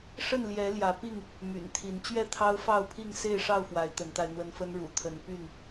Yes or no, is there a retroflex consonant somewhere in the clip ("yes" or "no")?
yes